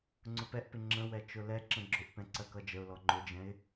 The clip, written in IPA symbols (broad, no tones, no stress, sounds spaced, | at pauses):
ŋ͡ǀ ʊ p ɛ ʔ p ɪ ŋ͡ǁ ə̃ w ɛ t͡ʃ ʊ l ɛ ǁ ə̃ ɡ͡ǁ ʊ ʔ p ɛ̃ ǀ ɜ k ʌ d͡ʒ ə ʊ̯ l ɔ ŋ͡ǃ ʊ d͡ʒ ɛ̃ ɪ̯